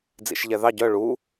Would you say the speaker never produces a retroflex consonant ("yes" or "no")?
no